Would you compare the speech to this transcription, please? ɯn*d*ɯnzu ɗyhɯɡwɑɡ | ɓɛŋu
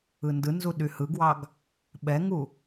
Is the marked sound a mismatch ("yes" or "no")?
no